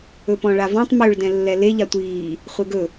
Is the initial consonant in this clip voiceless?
yes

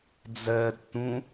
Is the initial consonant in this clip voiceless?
no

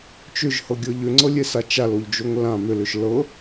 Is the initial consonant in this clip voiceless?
yes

